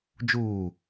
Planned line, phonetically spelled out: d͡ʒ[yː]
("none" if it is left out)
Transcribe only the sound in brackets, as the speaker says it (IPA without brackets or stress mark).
uː